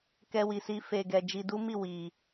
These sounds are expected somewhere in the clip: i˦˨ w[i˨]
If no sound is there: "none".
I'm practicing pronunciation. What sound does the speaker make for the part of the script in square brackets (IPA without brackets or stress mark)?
i˨